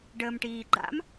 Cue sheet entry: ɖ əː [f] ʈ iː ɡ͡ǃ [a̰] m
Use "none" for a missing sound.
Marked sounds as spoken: m, a̰

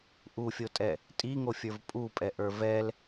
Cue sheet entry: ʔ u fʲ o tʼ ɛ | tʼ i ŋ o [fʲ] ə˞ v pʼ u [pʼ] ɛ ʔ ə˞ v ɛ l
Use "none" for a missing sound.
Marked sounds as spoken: fʲ, pʼ

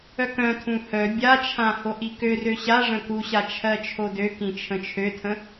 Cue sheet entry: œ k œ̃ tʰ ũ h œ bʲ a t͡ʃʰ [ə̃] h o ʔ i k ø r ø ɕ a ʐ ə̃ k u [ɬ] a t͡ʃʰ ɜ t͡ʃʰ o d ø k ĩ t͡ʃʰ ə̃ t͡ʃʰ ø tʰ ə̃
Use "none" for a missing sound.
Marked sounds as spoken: ã, ɕ

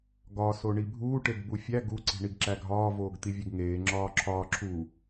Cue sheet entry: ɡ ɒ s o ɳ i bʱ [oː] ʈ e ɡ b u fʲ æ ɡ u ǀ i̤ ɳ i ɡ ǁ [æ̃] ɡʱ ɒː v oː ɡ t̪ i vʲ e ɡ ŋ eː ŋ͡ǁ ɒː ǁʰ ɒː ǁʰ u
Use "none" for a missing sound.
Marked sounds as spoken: uː, æ

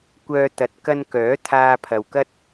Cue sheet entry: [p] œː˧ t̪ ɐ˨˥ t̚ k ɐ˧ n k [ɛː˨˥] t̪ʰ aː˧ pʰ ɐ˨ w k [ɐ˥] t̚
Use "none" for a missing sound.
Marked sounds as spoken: kʷ, œː˨˥, ɐ˥

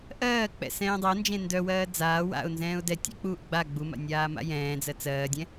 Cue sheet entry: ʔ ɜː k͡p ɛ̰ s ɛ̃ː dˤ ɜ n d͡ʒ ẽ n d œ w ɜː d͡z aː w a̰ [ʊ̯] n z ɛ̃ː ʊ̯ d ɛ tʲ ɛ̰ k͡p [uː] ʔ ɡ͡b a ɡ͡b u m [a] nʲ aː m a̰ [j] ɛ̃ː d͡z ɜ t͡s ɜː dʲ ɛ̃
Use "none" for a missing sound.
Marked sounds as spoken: ʊ̯, uː, a̰, j

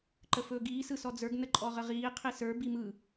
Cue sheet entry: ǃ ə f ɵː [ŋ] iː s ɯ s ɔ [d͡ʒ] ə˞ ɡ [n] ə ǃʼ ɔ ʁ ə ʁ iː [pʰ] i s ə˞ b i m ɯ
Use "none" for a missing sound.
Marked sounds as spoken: ɡ, d͡z, n, qʰ

